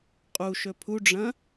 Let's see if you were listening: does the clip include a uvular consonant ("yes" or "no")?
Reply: yes